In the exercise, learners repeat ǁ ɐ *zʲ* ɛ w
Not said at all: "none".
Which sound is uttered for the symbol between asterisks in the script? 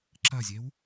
zʲ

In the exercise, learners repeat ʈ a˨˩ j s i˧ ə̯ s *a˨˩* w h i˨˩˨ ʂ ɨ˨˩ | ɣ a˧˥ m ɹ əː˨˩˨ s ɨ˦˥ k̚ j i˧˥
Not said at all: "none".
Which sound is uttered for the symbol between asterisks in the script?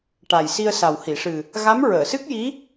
a˨˩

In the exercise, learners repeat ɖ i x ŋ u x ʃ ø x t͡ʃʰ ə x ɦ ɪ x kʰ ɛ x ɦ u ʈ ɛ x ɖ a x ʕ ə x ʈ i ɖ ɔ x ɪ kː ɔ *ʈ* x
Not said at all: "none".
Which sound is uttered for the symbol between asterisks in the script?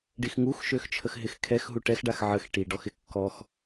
none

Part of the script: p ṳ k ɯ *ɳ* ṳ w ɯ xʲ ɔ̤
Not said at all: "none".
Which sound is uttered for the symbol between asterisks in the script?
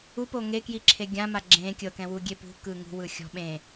ŋ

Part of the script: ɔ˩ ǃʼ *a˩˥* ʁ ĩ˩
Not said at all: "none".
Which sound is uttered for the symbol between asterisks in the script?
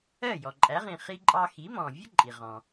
æ˩˥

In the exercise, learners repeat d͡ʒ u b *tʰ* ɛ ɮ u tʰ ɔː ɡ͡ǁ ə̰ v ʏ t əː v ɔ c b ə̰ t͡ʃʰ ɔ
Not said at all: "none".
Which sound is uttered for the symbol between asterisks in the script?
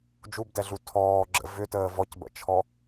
d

